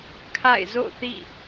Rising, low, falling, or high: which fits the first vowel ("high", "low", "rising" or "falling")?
falling